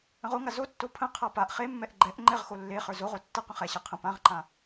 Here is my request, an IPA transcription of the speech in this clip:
ə̃ ʁ o ŋ a z o tː o pʰ ə̃ qʰ a p a ʔ χ e mː ɛ ʔ ɡ͡ǃ ɛ ʔ ŋ͡ǃ ɛ ʁ x o lː e χ ə˞ z o ʁ o tː ə q ə̃ χ ɛ ɕ ɛ qʰ ə̃ p ã ʁ ǃ ã

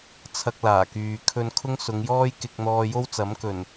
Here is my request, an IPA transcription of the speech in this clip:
t͡sʰ ɐ˧ k̚ l aː˨˩ k yː˨ kʰ ɵ˧ n kʰ ʊ˥ ŋ s ʊ˨˧ ŋ j ɔː˥ j k ɪ˧ k̚ n̪ ɔː˧ j o˥ w t͡s ɐ˨˥ m k ɵ˨˩ n

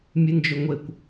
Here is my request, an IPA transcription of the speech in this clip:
mʲ ɨ n d͡ʒ ɵ ŋʷ e kʷ

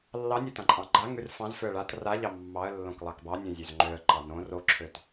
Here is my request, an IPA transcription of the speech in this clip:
lː ɑ nʲ o t ã ǃʼ ɑ̃ ɡ͡ǃ a ŋ ʉ r f ɑ̃ z f ø ə̯ ɭ a t r a ʎ ɑ mː ɑ ə̯ lː õ k lˠ ɑ k b ɑ nʲ õ zʲ ø z ŋ͡ǃ ø ə̯ ǃ ɑ n õ r o ǁʰ ø t

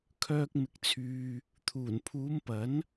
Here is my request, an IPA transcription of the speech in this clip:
kʰ œː˧ k̚ m ɪ˨ k̚ t͡sʰ yː˨ | t̪ʰ uː˨˩ n pʰ uː˨˧ m p ɐ˨˥ n

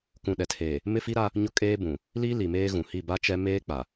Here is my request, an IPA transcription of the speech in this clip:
k ũ˨ ɗ ɛ˨ tʰ eː˨ | m ɪ˦ f i˦ ɾ a˦ | ɲ ʊ˦ kʼ eː˦ b ũ˨ | l i˦ l i˨ m eː˦ ɣ ũ˨ h i˦˨ b a˦ t͡ʃ ɛ˦ m eː˦ k͡p a˨

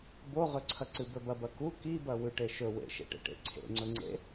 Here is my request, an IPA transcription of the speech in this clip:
b o ʁ ɵ ǀʰ ɐ ǀ ɨ b ɵ b ɐ b ɐ k u k i b ɐ w ʉ ʈ e ʃ ɵ w ḛ ʃ ḛ ʈ ḛ ʈ ḛ ǀʰ ḛ ŋ͡ǀ ɵ ŋ͡ǀ ḛ

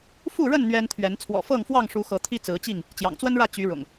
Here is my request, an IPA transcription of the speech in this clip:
f u˥˨ ɻ ə˥˨ n n̪ ɥ ɛ˦ n t̪ʰ ɥ ɛ˨˦ n t͡sʰ w ɔ̰˨˩ f ɤ˥˨ ŋ f w ɑ˥˨ ŋ ʂ u˨˦ x ɤ˨˦ t̪ʰ i˦ t͡s ɹ̩˨˦ t͡ɕ i˥˨ ŋ | t͡ɕ j ɑ̰˨˩ ŋ t͡s w ə˦ n ɻ ä˥˨ t͡ɕ y˨˦ ɻ ʊ̰˨˩ ŋ

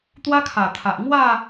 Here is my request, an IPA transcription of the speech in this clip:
t̪ w a˦ kʰ a˨˩ t̪ʰ a˨ ʔ ŋ w a˥˧

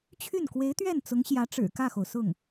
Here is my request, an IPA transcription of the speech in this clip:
t͡ɕʰ y˥˩ n k w e˧˥ ɪ̯ t̪ ɥ ɛ˥˩ n t͡s ʊ˧˥ ŋ ɕ j ä˧˥ ʈ͡ʂ ɻ̩˨˩ k ä˥˩ x o˩ ʊ̯ s ʊ˥˩ ŋ

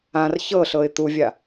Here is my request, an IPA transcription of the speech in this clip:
ã r ç ɤ ɬ ɤ ɪ̯ t̪ u vʲ a

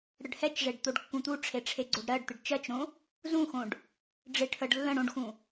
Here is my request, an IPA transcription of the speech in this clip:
ɽ ə ɖ h ɛ t͡ʃ ʐ e ɖ t̪ o ɖ kː ũ t̪ u ʈ͡ʂʰ e ʈ͡ʂʰ e ɡ͡ǀ o ɖ ɾ ɜ ɖ t̪ ɪ ɖ t͡ʃ ɜ t͡ʃ ɾ õ | z ũ x õ ɖ | ɖ͡ʐ ɪ ʈʰ ə ɖ lː ə̃ ɽ õ ɖ x ũ

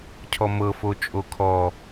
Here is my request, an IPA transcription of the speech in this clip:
cʰ ɔ m ɤ f o t͡ʃʼ o kʰ ɔ

